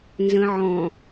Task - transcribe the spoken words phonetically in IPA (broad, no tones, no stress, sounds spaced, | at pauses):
n z ə̃ ʕ ɔ̃